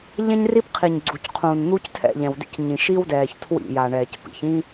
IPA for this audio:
ʎɛ̃˦ɲri˦pqʰiː˨ɲ ɡ͡ǀu˨cqʰũː˨nn̪u˦ctʰɛ̰˦˨ ʎɛ̃˨wdḭ˦cɲĩ˨ ʃi˦wdɛː˨ç tʰwḭ˦˨ja˨ɳɛː˨c pḭ˨çĩ˦

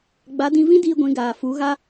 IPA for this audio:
ɡ͡ba˨˦dĩ˧ vĩ˦ diː˦ɡʷĩ˨˦ɡaː˨ fu˨˦ɣa˦

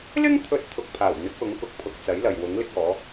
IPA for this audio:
lɪ˥ŋt̪ʰɵ˨˥t̚ t̪ʰʊ˨k̚pʰaː˨˩wn̪ɪ˨˥k̚wʊ˨˥ŋ kʊ˨˥k̚pʰʊ˨˥k̚t͡sɐ˨˥jlɐ˨j wʊ˨˥ŋlɪ˥k̚ɔː˨˥

